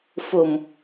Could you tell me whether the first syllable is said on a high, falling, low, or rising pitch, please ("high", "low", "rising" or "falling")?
low